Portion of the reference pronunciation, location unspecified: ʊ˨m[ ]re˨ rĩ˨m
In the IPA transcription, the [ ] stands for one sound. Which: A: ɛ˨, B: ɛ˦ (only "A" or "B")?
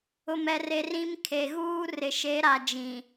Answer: A